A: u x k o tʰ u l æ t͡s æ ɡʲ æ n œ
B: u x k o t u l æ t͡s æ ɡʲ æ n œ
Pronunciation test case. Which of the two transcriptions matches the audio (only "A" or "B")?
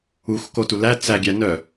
B